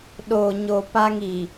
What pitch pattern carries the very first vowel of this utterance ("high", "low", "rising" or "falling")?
low